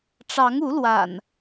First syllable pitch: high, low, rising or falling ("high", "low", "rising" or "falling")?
rising